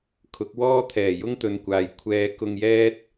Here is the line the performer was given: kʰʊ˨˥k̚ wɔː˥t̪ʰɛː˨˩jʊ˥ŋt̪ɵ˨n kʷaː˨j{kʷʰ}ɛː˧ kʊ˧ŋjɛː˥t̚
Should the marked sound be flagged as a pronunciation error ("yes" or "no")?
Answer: no